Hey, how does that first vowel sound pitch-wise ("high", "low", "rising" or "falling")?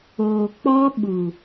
low